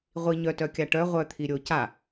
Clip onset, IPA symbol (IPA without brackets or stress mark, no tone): ʁʷ